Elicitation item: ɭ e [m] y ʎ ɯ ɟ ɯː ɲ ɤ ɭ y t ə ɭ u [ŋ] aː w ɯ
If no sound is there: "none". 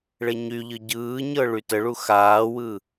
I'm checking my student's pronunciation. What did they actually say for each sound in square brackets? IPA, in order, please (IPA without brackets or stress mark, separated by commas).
ɲ, x